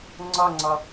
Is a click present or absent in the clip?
present